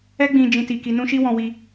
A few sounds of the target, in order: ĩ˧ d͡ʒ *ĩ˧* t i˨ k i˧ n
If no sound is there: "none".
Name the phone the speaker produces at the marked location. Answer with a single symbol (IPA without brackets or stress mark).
ĩ˧